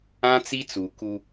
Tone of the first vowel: high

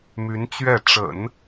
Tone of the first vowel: rising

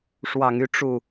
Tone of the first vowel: low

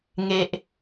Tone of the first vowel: high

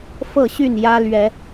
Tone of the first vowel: falling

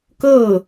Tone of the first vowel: falling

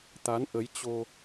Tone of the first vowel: rising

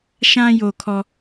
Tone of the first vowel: high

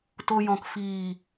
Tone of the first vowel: low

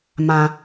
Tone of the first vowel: high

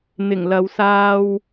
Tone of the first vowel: low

